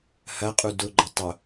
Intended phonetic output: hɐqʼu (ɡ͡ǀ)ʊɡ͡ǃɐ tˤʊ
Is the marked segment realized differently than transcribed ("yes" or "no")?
yes